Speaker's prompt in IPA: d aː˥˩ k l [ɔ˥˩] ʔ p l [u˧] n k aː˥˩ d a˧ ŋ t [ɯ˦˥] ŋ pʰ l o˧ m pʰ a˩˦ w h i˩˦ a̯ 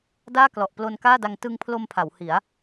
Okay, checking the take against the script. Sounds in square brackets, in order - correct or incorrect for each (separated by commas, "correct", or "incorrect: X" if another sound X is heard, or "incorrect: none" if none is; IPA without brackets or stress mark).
incorrect: ɔ˨˩, incorrect: o˧, incorrect: ɯ˧